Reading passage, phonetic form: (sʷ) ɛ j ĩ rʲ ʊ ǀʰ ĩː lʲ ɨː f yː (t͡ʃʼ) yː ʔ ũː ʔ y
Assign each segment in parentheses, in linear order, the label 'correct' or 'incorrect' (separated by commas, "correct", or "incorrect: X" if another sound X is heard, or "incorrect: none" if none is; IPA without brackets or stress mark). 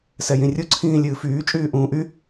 incorrect: s, correct